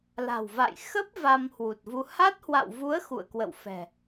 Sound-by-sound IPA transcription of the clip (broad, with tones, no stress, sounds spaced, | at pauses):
l a̤˨˩ w v a̰˧˨ j x ə˦˥ p̚ v a˧ m h w u˨˩ t̚ v u˧ h a˦˥ t̚ h w a̰˧˨ w v u˨˦ ə̯ x ṵ˧˨ ə̯ k w ə̰˧˨ w f ɛ̤˨˩